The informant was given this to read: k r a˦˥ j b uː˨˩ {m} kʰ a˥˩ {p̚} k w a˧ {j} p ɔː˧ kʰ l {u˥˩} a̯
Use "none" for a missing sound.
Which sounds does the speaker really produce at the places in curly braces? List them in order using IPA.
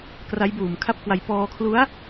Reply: m, p̚, j, u˦˥

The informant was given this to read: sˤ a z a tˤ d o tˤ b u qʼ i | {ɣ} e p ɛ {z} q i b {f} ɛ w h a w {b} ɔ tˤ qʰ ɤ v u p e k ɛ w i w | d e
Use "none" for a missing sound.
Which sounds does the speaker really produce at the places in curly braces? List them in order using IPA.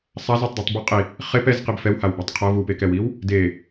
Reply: χ, z, f, b

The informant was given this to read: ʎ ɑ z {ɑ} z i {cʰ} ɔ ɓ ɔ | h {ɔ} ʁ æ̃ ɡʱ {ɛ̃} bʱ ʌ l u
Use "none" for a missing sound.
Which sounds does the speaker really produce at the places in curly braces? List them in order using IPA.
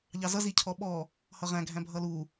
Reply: ʌ, cʰ, ʌ, æ̃

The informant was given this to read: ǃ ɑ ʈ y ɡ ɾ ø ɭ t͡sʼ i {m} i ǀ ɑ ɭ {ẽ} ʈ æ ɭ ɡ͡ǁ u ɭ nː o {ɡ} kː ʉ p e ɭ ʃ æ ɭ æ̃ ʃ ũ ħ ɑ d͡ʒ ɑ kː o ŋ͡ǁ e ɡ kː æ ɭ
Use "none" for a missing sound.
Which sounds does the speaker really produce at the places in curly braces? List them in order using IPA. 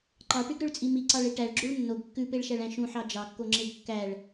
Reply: m, e, ɡ

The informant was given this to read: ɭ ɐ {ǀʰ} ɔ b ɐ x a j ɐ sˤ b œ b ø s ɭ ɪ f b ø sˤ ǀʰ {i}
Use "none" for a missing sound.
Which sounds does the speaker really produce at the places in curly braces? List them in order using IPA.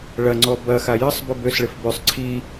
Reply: ŋ͡ǀ, i

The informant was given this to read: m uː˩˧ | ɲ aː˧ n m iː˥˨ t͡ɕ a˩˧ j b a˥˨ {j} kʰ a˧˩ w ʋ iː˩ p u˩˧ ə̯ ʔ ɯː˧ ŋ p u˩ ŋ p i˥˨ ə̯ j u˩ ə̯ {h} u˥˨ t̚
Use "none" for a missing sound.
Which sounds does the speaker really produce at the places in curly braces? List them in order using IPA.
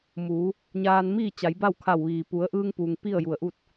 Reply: w, ʔ

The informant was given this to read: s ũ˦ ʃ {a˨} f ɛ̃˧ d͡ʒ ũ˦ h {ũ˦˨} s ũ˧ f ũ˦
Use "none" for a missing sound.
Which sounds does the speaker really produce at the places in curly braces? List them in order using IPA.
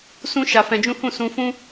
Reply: a˧, ũ˦˨

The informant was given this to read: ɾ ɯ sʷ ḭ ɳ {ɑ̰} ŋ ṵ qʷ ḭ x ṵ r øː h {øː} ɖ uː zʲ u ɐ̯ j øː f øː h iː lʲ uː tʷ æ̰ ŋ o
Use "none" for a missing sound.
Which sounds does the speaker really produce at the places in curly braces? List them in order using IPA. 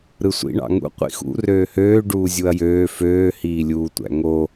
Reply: ɑ̰, øː

